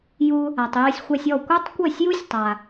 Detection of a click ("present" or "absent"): absent